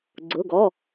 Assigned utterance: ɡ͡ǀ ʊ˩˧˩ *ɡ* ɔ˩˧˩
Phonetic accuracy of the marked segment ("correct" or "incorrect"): correct